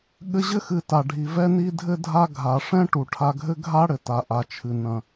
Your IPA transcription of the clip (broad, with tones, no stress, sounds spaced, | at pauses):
ɠ ɘ˧ ʑ ɘ˦ x ɨ˨ t a˨ ɖʱ i˨ v ɛ˧ n i˧ dʱ ɘ˧ dʱ a˧ ɡʱ a˨ ʂ ɛ̃˦ ʈ u˨ ʈʰ a˧ ɡʱ ɘ˦ ɡʱ a˦ ɽ ɘ˨ t a˨ ʔ a˨ t͡ʃʰ ɨ˨ n ɐ̃˨